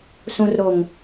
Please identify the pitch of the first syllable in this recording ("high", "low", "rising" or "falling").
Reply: low